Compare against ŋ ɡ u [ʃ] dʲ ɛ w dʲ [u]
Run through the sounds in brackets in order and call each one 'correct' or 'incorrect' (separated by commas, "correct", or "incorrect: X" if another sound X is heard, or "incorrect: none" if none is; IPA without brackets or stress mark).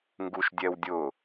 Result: correct, incorrect: ʊ